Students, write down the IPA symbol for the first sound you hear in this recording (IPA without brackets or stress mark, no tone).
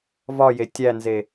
v